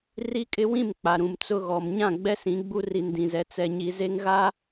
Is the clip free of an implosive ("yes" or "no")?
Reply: yes